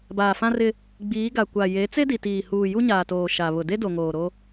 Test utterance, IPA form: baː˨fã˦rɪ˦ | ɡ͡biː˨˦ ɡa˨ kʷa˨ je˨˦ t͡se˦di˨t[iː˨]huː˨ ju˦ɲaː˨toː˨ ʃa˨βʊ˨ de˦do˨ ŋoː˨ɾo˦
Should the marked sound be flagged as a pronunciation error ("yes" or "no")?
no